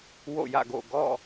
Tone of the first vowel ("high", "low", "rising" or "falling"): falling